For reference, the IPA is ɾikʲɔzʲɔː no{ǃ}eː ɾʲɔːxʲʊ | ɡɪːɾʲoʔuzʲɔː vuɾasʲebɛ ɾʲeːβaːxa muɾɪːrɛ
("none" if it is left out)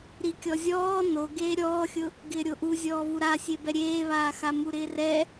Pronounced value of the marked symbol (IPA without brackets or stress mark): ɡ